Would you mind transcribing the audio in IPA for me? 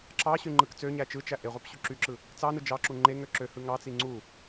ǁ ɑ ɕ y ŋ͡ǃ ɯ k t͡s ø ɲ æ t͡ʃ ɯ t͡ʃ æ ʔ e ʁʷ ɑ p ɕ u ǁ y ǁ ɯ | t͡s ɑ n ɯ d͡ʒ ɑ ǁ u ŋ͡ǃ e ŋ ø ǁ ø h ɯ ŋ ɑ t͡s i ŋ͡ǀ u

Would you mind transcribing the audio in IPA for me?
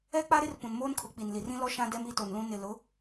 ɛ˦ k͡p a˦ ɾ ɪ˦ r p ũ˨ n m oː˦ n kʰ ʊ˨˦ k͡p i˨ n l i˨ r ĩ˦ l ɔ˦ ʃ ã˦ d ɛ˦ m i˦ t o˨ n l ũ˦ n ɪ˨ l ʊ˨˦

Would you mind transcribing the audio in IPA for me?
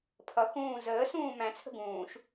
pʰ ʌ x ũː z əː s ũː m æ̃ t͡sʰ ə̤ ɡ ũː ʃ

